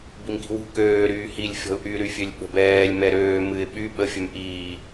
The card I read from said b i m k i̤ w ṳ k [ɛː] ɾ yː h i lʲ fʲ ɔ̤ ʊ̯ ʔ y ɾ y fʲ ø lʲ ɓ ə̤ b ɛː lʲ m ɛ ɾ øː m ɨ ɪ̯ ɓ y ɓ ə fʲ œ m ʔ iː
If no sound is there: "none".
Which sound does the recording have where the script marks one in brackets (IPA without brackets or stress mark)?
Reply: øː